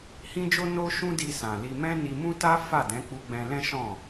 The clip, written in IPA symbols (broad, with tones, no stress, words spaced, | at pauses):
hĩ˦d͡ʒo˦ no˦ ʃũ˦di˧sã˨ li˧mɛ̃˦ ni˧mũ˦ta˦ fa˦˨dɛ̃˨˦k͡pu˧ ɡ͡bɛ̃˧lɛ̃˦ ʃɔ̃˦˨